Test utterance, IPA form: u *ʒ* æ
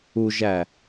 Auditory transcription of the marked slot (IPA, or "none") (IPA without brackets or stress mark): ʒ